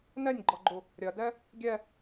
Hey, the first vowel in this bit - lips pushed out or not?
no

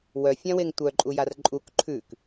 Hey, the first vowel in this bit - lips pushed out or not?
yes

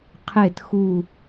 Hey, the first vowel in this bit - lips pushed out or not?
no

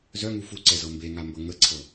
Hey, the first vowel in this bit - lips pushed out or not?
yes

